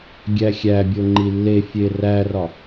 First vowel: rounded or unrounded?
unrounded